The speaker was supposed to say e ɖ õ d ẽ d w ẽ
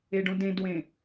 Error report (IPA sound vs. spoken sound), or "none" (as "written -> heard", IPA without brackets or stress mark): none